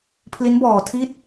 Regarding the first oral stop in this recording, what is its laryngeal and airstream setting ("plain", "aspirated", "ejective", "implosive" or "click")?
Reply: aspirated